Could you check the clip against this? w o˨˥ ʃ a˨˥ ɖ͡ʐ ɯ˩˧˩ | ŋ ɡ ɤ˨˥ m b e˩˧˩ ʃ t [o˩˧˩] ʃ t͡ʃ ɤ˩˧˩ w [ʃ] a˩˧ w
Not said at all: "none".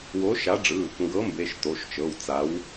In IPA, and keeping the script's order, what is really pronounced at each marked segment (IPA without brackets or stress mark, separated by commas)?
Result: o˩˧˩, t͡s